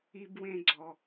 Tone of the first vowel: high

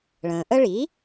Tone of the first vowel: low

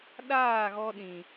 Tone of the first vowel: falling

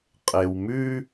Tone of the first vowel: low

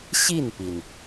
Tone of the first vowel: falling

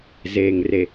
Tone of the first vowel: low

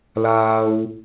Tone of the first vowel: high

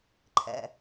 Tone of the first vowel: low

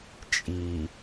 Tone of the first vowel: low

